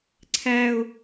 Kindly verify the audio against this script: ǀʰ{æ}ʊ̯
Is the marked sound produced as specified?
yes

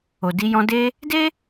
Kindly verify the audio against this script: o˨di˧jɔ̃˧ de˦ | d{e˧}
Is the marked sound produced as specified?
no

